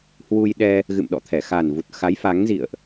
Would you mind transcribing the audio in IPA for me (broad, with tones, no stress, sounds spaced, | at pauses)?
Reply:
h w u˧ j ɗ ɛ˧ | ɣ ɨ̰˧˨ m ɗ ɔ̰˧˨ t̪ʰ ɛ˧˩ x a˨˩ n v u˨˩ t̚ x a˨˦ j f a˨˦ ŋ z ḭ˧˨ ə̯ ʔ